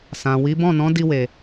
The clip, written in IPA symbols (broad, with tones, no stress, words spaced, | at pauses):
sã˨wi˨˦ bɔ̃˦˨nɔ̃˨˦ di˧ we˨